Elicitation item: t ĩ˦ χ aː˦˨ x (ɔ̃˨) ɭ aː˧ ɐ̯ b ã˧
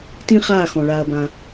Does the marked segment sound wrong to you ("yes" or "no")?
no